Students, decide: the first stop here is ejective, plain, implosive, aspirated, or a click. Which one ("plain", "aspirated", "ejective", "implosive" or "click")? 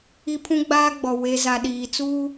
aspirated